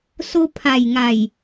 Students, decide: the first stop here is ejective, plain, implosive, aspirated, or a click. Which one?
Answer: aspirated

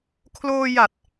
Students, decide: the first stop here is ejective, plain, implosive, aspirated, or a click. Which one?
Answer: aspirated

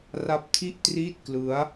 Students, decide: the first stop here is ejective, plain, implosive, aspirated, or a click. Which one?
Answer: plain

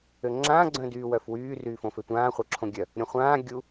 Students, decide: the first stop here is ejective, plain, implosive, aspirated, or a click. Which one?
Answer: click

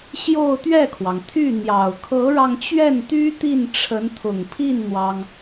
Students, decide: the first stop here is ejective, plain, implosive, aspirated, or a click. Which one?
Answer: plain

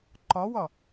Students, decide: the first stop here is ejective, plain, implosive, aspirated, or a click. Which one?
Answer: click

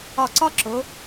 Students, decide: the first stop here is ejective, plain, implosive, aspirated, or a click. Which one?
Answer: click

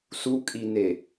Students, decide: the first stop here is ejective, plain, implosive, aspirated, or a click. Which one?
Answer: ejective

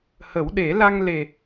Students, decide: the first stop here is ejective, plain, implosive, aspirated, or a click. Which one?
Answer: implosive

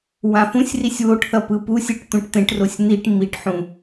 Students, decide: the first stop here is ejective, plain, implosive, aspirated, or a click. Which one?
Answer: plain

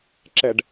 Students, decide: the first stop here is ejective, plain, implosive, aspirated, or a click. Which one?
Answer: click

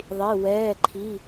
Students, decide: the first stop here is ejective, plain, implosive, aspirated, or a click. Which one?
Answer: click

